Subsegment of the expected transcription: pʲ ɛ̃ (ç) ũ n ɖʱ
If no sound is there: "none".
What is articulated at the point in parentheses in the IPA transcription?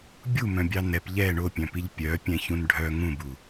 ç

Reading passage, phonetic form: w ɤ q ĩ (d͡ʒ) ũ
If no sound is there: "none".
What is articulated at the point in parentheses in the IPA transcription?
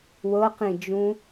d͡ʒ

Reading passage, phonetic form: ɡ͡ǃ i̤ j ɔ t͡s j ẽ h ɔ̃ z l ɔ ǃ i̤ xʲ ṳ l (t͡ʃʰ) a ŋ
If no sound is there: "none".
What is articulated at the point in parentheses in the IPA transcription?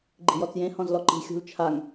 t͡ʃʰ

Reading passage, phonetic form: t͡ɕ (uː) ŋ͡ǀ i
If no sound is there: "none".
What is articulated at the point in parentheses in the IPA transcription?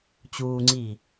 uː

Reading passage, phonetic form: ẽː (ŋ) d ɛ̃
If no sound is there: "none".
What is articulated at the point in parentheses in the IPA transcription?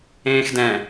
x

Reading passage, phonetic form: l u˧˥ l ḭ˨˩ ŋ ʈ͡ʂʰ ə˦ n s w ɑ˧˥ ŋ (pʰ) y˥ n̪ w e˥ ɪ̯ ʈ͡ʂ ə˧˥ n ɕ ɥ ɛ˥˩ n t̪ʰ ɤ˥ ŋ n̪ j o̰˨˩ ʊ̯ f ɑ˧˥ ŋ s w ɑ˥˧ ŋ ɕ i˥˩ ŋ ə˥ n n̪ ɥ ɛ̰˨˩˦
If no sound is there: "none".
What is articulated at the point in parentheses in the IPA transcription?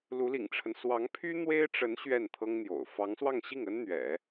pʰ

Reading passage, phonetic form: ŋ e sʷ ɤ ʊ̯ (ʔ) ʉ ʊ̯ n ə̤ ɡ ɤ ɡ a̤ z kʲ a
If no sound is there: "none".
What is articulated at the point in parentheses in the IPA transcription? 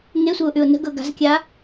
ʔ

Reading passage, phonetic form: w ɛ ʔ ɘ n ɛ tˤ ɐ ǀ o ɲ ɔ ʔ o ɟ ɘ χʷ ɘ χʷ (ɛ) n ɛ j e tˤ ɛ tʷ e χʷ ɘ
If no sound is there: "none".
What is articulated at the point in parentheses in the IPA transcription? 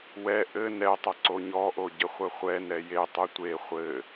ɛ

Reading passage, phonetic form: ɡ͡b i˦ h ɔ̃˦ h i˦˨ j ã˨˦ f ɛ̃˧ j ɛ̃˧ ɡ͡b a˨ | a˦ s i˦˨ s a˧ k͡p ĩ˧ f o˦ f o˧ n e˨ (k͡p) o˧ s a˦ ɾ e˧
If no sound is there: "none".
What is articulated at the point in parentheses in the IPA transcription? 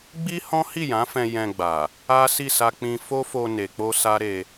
k͡p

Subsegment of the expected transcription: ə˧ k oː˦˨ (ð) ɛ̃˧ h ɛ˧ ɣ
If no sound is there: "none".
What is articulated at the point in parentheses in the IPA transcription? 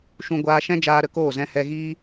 z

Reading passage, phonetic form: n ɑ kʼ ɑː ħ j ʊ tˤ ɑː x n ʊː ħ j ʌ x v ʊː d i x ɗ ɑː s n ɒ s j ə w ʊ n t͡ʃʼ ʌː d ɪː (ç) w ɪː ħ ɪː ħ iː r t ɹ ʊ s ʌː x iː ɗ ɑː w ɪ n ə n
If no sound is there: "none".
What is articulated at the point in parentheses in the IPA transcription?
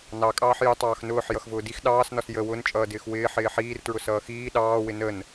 x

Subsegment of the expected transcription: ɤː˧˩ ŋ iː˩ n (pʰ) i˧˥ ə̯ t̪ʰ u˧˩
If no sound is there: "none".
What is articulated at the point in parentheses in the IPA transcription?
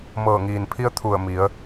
pʰ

